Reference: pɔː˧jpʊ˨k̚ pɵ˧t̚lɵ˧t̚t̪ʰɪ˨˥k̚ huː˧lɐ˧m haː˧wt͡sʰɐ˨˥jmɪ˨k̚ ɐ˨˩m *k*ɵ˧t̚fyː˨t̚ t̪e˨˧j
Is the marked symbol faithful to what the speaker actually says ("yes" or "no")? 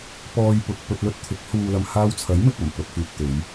no